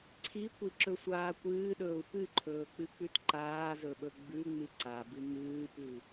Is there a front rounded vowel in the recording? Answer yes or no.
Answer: no